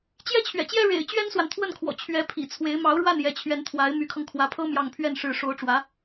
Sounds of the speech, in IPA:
t͡ɕ j ɛ˥ t͡ɕʰ ɥ ɛ̰˨˩ t͡ɕ j ɛ˥ ɻ ḛ˨˩ ɪ̯ t͡ɕ ɥ ɛ˥ n s w a˨ n t̪ʰ w ə˥˩ n kʰ w ɔ̰˨˩ t͡ɕʰ ɥ ɛ˧˥ pʰ ḭ˨˩ t͡sʰ w e˧˥ ɪ̯ m ɑ˧˥ ʊ̯ ɻ w a˥˩ n j ɛ˧˥ t͡ɕʰ ɥ ɛ˧˥ n t̪ʰ w a˧˥ ɪ̯ m y˧˥ kʰ ɤ˧ ŋ kʰ w ä˧˥ pʰ ɤ˥ m j ɑ˥˧ ŋ pʰ ɥ ɛ˥˧ n ʂ ɻ̩˥˩ ʂ o˧˥ ʊ̯ ʈ͡ʂ w ä˧˥

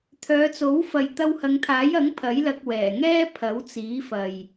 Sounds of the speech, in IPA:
t̪ʰ œː˨˧ t͡s o˨˥ w f ɐ˨ j t̪ ɐ˧ w h ɐ˨˧ ŋ t̪ʰ aː˨˥ j ɐ˨˥ ŋ pʰ ɐ˨˥ j l ɐ˧ k̚ w ɛː˨˩ ŋ ɛː˥ pʰ ɐ˨˥ w t͡s iː˨˥ f ɐ˨ j

